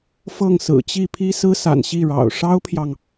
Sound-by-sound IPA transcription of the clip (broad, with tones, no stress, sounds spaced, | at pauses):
f ɤ˥˩ ŋ s ɹ̩˨˩ t͡ɕ i˥˩ pʰ i˥ s ɹ̩˥ s a̰˨˩ n ɕ i˥˩ ɻ ɑ̰˨˩ ʊ̯ ʂ ɑ˥ ʊ̯ pʰ j ɑ˨ ŋ